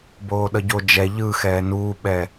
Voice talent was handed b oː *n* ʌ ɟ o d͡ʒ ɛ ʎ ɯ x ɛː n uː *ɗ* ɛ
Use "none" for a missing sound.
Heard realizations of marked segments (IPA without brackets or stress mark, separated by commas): ɗ, ɓ